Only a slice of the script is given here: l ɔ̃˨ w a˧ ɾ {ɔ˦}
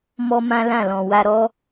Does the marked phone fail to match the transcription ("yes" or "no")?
no